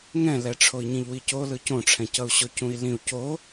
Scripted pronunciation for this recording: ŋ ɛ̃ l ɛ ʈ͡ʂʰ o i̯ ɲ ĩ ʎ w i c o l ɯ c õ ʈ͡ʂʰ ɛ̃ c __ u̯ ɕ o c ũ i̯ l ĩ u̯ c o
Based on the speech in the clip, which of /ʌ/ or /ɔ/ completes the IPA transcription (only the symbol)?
ʌ